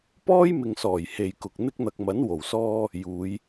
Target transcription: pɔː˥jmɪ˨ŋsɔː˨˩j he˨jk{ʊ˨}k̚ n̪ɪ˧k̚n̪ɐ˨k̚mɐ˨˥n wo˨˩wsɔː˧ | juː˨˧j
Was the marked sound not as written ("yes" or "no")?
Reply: no